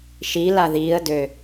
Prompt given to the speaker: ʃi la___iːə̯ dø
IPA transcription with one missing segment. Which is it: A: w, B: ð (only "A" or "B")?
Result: B